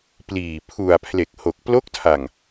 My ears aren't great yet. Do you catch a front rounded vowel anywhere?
no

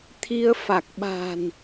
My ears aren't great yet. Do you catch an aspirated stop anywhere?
yes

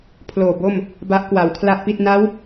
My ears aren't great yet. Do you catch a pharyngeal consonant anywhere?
no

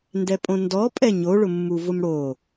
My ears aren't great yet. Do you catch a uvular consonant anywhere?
no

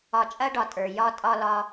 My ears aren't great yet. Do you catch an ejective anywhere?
yes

